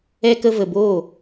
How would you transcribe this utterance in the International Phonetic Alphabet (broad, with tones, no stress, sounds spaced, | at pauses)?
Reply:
ɛ˧ k ə˧ v ə˨ b oː˦˨